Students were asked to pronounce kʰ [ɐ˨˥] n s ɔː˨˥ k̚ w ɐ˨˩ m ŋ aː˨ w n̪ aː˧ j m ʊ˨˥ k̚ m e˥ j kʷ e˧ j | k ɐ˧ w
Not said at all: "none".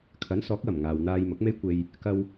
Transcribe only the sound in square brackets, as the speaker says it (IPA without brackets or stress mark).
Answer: ɐ˨˥